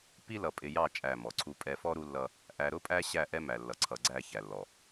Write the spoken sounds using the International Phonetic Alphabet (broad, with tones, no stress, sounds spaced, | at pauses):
p i˦ l ʌ˨ pʼ ɪ˨ j ɑ˦˨ t͡ʃʼ æ˦˨ m ɔ˨ ǀʰ u˨ pʼ ɛ˨ f ɔ˦ ɾ u˦ lː ʌ˦ | ʔ æ˨ ɾ ʊ˦ pʼ æ˦ ɕ æ˦˨ ʔ ɛ˦ m æ˨ lː ʌ˨ ǀʰ ʌ˨ ɡ͡ǀ æ˦˨ ç æ˨ lː ɔ˨